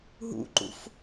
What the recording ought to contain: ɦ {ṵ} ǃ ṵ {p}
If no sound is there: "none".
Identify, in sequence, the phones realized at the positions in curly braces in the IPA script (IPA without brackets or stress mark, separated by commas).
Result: ṵ, f